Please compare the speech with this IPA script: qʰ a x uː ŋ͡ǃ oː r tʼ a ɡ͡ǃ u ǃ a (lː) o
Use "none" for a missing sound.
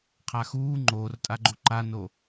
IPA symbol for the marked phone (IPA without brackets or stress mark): n